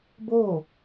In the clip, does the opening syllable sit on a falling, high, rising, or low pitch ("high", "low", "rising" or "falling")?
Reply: falling